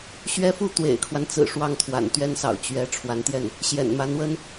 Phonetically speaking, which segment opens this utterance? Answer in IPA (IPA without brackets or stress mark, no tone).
ɕ